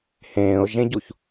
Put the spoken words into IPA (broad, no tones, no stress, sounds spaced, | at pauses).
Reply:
h ẽː ʊ̯ ʒ ẽ ɟ u ç